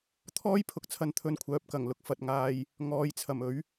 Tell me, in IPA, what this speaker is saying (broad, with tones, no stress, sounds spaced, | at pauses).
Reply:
t̪ʰ ɔː˥ j pʰ ʊ˨ k̚ t͡sʰ ɐ˨˧ n t̪ʰ ɵ˨ n kʷʰ œː˨ p̚ k ɐ˨˩ ŋ l ʊ˧ k̚ f ɐ˨ t̚ ŋ aː˧ j | ŋ ɔː˨˧ j t͡sʰ ɐ˨˩ m ɵ˨˥ ɥ